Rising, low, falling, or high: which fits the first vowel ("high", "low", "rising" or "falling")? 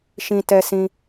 low